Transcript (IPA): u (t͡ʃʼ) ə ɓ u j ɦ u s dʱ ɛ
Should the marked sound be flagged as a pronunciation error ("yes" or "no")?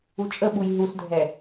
no